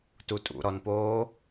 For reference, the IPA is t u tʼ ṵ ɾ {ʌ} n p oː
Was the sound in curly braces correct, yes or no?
no